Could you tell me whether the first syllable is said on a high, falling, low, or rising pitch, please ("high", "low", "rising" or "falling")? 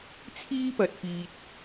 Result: high